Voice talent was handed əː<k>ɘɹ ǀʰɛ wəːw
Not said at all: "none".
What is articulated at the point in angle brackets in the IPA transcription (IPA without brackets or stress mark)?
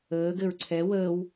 ɡ